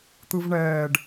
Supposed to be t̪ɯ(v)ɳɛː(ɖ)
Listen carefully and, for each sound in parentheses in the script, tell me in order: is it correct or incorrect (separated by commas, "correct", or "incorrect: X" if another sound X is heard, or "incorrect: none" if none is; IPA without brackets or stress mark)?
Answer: correct, correct